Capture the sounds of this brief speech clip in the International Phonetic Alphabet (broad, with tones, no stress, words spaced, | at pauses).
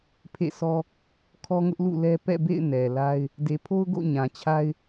pʰḛ˦˨sʰɔ˦ | kʰɔ˦ŋʊ˦ʔ lṵ˦˨lɛ˦ pɛ̰˦˨bḛ˦˨ɪ̯ nɛ˨la˦ɪ̯ | de˨pʰo˦ʊ̯ ɡo̰˦˨ ɲã˨t͡ɕʰa˦ɪ̯